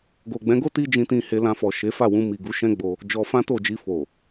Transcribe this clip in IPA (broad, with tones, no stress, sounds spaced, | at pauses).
ɡ o˨ ɡ͡b ɛ̃˨˦ ɡ o˦ t i˦ d͡ʒ ĩ˧ t ĩ˧ h e˧ l ã˧ f ɔ˨ ʃ e˨˦ f a˦˨ w ũ˧ m i˨ ɡ u˨˦ ʃ ɛ̃˦ ɡ͡b o˧ | d͡ʒ ɔ˧ f ã˦ t o˦˨ d͡ʒ i˧ f o˨